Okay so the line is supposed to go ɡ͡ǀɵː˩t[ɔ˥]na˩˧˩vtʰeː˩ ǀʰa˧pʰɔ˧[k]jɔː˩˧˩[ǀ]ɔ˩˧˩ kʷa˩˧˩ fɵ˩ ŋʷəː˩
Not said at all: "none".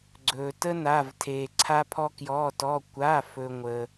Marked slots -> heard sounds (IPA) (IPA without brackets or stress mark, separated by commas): ə˥, k, t